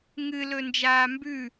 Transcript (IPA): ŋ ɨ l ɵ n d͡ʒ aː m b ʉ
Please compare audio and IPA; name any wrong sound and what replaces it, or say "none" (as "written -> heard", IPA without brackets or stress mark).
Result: none